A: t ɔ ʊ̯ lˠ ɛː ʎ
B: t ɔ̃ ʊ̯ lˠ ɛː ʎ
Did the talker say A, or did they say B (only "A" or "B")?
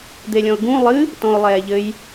B